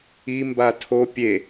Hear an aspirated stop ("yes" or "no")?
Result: yes